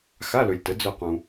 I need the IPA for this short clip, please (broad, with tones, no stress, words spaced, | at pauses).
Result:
xa˧˥˧lɵ˨lʲtə˩˥ d͡zɵ˦˨qũ˨